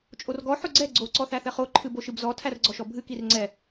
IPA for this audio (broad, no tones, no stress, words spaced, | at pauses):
t͡ʃʼorɡɔ ħʊɡ͡ǀɛ ɡ͡ǀo ǀɔθæθɛχo ǃʰɨboʃɨbzɔ tʰærɡ͡ǀɔʃɔbʱɨ kirŋ͡ǀɛ